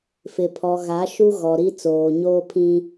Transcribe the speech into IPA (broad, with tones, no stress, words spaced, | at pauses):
fɪ˨pʰɔ˨ɣa˨˦ ʃu˦ɣɔ˨ɾi˦ t͡soː˨ɲoː˦pʰĩ˦